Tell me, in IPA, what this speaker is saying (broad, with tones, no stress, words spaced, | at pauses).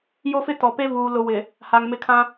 jo˦fɪ˦ tɔ˨pe˦vuː˨ lʊ˨ wɪ˨ | ha˨ŋmɪ˦˨kʰã˦